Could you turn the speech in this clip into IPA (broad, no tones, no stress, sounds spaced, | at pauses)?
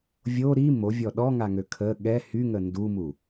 vʲ o ɾ i m o vʲ ɔ ɗ ɔ ŋ a ŋ ø kʰ ə ɠ ɛ h y ŋ ə n d u m u